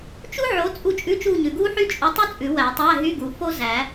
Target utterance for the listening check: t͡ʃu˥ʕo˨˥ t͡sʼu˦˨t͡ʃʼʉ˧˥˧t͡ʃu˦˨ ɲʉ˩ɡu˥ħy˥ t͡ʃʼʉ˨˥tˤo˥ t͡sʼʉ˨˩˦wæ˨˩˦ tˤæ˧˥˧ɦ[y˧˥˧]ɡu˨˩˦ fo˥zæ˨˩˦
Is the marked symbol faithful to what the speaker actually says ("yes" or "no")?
yes